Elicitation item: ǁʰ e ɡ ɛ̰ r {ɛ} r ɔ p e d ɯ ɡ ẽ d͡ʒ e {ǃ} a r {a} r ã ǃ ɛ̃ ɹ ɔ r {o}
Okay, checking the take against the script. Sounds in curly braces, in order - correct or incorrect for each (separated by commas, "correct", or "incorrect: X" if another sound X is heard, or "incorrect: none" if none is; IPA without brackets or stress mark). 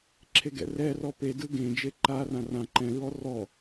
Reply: correct, correct, incorrect: ã, incorrect: ɔ